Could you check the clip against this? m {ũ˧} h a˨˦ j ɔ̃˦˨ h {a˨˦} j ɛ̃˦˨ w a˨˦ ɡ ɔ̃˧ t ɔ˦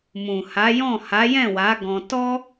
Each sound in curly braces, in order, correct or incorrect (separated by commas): incorrect, correct